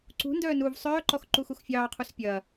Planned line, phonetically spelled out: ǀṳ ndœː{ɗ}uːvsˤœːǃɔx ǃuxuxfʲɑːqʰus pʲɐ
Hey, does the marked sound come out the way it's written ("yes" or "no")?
no